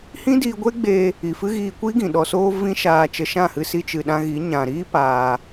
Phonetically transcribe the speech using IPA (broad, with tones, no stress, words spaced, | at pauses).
hĩ˦diː˧ɡʷe˦ɡ͡beː˧ | i˨fɨ˦ɣiː˧kʷi˦ ɡĩ˨ɗɔ˧soː˦ vĩ˦ʃaː˧ t͡ʃə˧ʃã˦˨hɨ˧ si˧t͡ʃɨ˨ɗã˧ɣi˨˦ ɲã˨ɾiː˦ paː˦